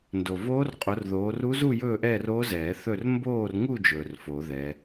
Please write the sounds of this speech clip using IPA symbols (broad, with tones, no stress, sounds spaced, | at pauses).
n d o˨ v oː˦˥ r qʼ o˨˦ r ð oː˨˦ r u˦˥ z u˥˧ j ɵː˥˧ ʔ ɛː˥˧ r o˦˥ z ɛː˨˩˦ θ ɵ˥˧ r m b oː˥˧ r ŋ u˥˧ d͡ʒ ɵː˨ r f o˨˩˦ ð ɛ˨˦